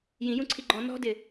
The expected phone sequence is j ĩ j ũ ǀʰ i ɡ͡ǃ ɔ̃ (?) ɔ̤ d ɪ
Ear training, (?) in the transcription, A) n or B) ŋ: A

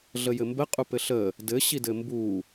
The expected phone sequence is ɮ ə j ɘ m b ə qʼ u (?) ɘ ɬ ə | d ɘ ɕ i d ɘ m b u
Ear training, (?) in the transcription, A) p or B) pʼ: A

